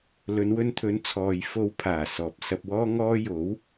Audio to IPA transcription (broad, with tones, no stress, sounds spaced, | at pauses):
l ɵ˨˧ n w ɵ˧ n t̪ʰ ɵ˨˧ n t͡sʰ ɔː˨ j f o˨˧ w pʰ aː˨˩ s ɔː˨ p̚ s ɐ˧ p̚ w ɔː˥ ŋ ɔː˥ j o˨˥ w